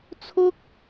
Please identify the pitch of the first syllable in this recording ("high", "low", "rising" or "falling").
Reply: high